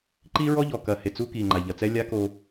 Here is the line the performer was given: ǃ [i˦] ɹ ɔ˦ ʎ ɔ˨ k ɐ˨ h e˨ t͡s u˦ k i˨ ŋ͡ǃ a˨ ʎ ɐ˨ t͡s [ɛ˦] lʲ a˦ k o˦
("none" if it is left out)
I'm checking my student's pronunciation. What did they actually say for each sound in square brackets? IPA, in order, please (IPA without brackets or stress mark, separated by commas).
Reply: i˦, ɛ˦